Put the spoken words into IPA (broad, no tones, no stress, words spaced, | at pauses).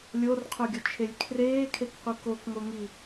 lʲorqʰoɡʲot͡ʃʰelʲ kʰreːkʰekqʷi kokŋoŋi